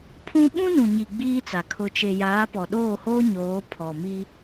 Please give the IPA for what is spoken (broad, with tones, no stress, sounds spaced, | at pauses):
pʰ ũ˦ ɓ ũ˦ n ũ˨ ɲ i˨ ɡ͡b iː˦ t͡s a˨ kʰ ʊ˨ t͡ʃ e˨ j aː˨˦ p ɔ˨ ɗ oː˦˨ h oː˦ ɲ oː˨˦ pʰ ɔ˨ m i˦